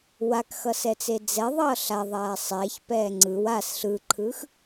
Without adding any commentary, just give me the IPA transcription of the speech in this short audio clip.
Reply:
w a k x ʌ s ɛ t͡s e d͡z ɛ ðˤ ʌː ɬ a ðˤ aː sˤ ɛː ç p ɛː ŋ͡ǀ ɯ w a s ɬ ɯ ǃʰ ɯ x

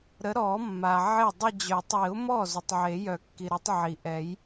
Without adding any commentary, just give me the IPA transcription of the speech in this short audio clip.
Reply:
ɾ ə˨˥ ɾ ɔ˨˩˦ mː a˩ ʕ e˥˩ dˤ ə˥˧ d͡ʑ œ˨˩˦ tˤ i˨˩˦ ʊ̯ m ɔ˥˩ z u˩ tˤ ʕ e˨˩˦ j œ˨˩˦ kː i˩ ɾ o˨˥ tˤ ʕ i˩ ʔ ɛ˨˩˦ j

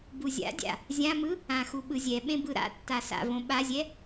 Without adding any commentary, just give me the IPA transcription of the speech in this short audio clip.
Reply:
b u zʲ a̰ dʲ a̰ | zʲ ã m ɯ | ã x u ɓ ɯ zʲ ɛ ɓ ẽ b ɯ ɾ a̰ tː a s a̰ v õ ɓ a zʲ ɛ

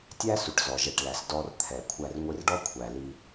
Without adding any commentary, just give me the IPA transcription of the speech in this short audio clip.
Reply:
tʲ æ˦ s u˨ ʈ z ɔ˨ ʒ ɛ˨ ʈ l æ˨ s d ɔ˧ r t̪ʰ ɛ˨ kʷʰ æ˧ r ŋʷ i˧ r ɖ ɔ˦ kʷʰ æ˨ l i˧

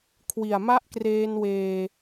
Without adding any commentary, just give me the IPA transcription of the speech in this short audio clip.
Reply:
kʰ w i˨˩ a̯ m a˥˩ ʔ k r eː˧ n w eː˨˩

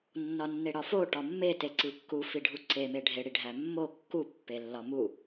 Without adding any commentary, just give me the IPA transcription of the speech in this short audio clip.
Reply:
nː ɒ nː e ɽ ɒ f o ʈ ɒ mː e t e ǀ i kː u f i ɖʱ u ǀ e m e ɖʱ e ɽ i ɖʱ æ mː o kː u pː e lː ɒ m u

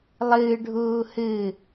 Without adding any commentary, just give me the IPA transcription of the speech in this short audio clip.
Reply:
lˠ ɨː ɖʱ uː h ɨ

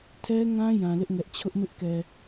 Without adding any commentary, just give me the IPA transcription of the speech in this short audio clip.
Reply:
tʰ ɛ˦ ŋ ã˦ j ã˨ l ɪ˦ ʔ ŋ ɛ˦ ʔ t͡ɕʰ ʊ˦ ʔ m ɪ˦ ʔ k ɛ˨

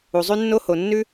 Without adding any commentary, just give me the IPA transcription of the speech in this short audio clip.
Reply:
u˩ zˤ ʉ˥ nː o˥ h o˩ nː ʉ˥

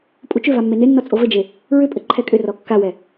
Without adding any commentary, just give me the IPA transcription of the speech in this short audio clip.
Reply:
pʼ u t͡ʃ ʏ v a mː e n e nː ɔ t͡sʼ o v ɘ d͡ʒ e | ɹ ʏ pʼ ɘ ǃʰ ɛ kʼ ʏ r ɔ kː a w ɛ

